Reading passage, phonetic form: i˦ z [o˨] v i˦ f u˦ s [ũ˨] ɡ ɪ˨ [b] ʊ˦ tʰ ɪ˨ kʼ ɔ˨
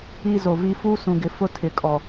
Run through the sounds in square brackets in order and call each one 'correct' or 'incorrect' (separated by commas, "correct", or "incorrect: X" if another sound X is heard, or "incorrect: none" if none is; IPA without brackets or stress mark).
correct, correct, incorrect: f